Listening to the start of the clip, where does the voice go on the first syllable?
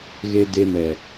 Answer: low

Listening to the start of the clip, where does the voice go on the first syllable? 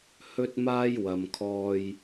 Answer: high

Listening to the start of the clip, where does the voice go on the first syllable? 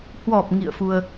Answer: low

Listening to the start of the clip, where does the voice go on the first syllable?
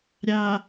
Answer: low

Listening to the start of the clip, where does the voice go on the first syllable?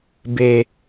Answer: low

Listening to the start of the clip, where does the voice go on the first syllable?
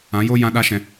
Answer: rising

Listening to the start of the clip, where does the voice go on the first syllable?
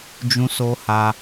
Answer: high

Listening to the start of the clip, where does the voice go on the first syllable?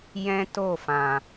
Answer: high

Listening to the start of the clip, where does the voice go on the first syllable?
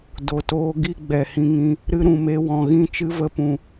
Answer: low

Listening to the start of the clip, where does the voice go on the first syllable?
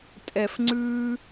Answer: low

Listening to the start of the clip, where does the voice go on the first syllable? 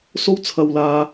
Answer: high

